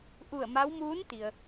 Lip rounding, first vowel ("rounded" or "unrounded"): rounded